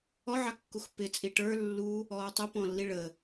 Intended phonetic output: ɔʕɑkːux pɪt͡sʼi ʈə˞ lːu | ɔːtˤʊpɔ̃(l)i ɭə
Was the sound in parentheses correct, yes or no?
no